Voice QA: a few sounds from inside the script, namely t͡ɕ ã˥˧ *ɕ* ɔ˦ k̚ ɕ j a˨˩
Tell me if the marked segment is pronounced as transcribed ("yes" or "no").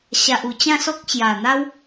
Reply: no